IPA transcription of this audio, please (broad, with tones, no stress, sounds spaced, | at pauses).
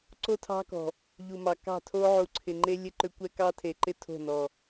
ǀ o˦ tʰ ɑ̤˦ k ɔ̤˨ | ʎ u˨ m ɑ˨ k ɑ̤˦˨ tʰ o˦ ʕ u˨ ǀʰ ɪ˨ ŋ͡ǃ e˦ lʲ ɘ˦˨ ǃ ʏ˦ kʷ ɛ˦ k ɑ˦ tʰ e˨ ǃ ɪ˦ tʰ o̤˦˨ n ɔ˨